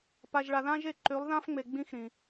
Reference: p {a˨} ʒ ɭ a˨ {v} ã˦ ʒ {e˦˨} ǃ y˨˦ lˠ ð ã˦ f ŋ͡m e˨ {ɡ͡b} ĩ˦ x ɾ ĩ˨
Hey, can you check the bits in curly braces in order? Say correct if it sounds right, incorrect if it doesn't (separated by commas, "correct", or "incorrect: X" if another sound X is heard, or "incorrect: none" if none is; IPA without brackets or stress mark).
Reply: correct, incorrect: ð, correct, correct